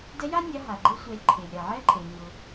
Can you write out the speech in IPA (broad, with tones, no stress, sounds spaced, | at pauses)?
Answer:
d ɛ˧˥ j a˥ nʲ a˧˥ ɦ a˩ ɡ͡ǃ e˧˥ sʷ ɛ˩˧ lʲ ǃʰ e˩ lʲ ɾ a˩ ʕ ɛ˧˥ ǃʼ e˩ ɲ ʊ˩